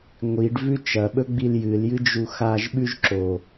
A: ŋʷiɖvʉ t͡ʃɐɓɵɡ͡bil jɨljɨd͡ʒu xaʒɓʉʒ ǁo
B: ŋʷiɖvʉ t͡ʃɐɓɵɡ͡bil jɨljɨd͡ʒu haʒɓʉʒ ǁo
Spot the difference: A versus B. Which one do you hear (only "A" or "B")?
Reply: A